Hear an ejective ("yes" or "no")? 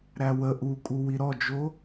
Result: yes